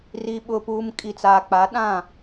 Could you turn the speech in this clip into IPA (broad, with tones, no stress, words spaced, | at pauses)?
ri˨ɓʊ˨puː˨m kʼi˨t͡saː˨k͡pa˨˦ ɗã˦˨